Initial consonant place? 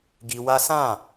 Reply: velar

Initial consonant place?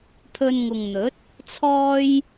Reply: labial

